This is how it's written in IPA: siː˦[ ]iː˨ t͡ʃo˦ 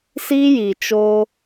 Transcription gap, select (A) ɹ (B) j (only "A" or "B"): B